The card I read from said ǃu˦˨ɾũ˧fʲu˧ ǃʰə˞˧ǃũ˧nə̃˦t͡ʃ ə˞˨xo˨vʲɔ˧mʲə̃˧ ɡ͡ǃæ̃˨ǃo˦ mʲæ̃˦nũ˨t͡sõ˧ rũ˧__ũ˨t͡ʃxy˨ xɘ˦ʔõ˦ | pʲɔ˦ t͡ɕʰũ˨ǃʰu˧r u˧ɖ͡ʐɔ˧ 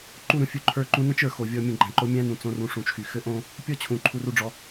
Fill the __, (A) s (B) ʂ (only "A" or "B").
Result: B